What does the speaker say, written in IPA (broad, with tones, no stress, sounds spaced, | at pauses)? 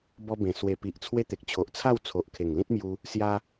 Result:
b ɔ˧ b ẽ˨˩ s w e˨˩ p i˨ ʔ t͡sʰ w e˧ t̪ e˨ k̚ t͡ɕʰ o˨ ʔ t͡sʰ a˥˧ w t͡sʰ o˨ ʔ kʰ e˨˩ ŋ l ĩ˦ t̚ m j u˧ | s j a˧